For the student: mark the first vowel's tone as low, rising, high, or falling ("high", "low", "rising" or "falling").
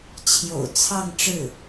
low